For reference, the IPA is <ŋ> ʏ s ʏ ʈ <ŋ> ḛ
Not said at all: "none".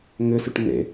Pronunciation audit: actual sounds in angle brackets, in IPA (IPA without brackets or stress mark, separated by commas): ŋ, n